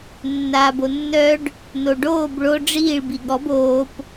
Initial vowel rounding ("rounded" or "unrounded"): unrounded